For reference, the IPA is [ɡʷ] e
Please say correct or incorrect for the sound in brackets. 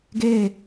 incorrect